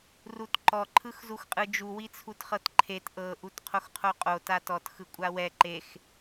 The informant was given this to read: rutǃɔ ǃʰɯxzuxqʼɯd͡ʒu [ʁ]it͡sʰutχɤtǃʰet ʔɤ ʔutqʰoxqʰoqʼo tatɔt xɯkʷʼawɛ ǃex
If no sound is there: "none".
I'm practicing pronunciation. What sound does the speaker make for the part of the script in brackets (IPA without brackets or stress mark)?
w